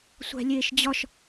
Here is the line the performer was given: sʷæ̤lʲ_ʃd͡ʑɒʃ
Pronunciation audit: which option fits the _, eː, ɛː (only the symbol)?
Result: eː